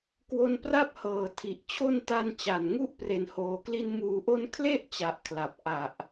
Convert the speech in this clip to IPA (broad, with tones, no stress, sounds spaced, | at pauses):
k w o˦˥ n p r a˥˩ p̚ h ɤː˨˩ tʰ i˨˩ ʔ t͡ɕʰ o˧ n t a˧ n t͡ɕ a˨˩ n ŋ u˥˩ ʔ p r e˨˩ n h oː˩˦ k l i˧ n m uː˩˦ ʔ o˧ n kʰ l e˥˩ ʔ t͡ɕ a˨˩ ʔ kʰ l a˨˩ p̚ ʔ a˨˩ ʔ